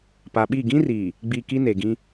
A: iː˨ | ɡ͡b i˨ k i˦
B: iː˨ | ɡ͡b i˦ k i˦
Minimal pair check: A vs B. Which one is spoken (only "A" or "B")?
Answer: A